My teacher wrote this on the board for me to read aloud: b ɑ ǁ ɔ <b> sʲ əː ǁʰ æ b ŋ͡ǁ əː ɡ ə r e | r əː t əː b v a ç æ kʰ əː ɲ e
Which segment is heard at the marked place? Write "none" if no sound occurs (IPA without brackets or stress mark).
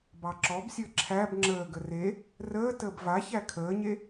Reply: b